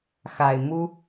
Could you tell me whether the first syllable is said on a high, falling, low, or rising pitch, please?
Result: low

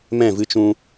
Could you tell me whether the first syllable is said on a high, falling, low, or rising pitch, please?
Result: falling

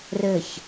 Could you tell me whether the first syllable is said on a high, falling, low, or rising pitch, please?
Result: falling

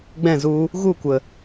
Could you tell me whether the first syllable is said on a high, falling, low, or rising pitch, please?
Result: falling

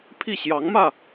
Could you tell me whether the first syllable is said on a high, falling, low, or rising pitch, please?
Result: falling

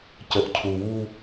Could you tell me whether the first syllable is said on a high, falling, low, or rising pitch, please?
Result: low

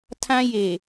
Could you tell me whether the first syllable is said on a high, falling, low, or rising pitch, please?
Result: high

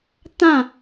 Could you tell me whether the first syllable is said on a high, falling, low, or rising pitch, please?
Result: falling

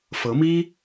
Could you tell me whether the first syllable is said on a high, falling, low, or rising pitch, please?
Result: rising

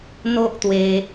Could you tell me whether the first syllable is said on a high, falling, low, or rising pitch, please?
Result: high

